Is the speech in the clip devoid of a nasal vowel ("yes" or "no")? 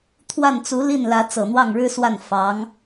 yes